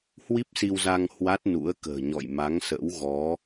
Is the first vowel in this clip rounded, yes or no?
no